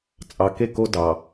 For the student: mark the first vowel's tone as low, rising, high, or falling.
low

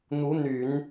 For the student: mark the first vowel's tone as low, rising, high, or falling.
rising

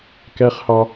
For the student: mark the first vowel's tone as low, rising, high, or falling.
high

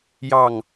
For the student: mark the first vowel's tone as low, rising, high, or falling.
falling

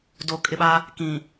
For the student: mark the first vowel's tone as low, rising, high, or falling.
low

